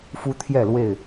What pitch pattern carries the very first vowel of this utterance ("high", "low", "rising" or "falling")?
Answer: high